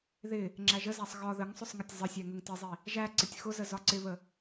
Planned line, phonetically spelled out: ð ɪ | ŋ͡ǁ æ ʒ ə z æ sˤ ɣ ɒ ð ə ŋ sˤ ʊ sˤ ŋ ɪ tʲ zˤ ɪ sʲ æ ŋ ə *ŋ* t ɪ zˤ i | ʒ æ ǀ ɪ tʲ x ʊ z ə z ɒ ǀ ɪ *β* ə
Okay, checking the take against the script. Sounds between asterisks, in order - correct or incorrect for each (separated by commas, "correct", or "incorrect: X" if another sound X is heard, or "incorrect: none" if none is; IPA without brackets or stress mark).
correct, correct